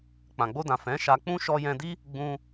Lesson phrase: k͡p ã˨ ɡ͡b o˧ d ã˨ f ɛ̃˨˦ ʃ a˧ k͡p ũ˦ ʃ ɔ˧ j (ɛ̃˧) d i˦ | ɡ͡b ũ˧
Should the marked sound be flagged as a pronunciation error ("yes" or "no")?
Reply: no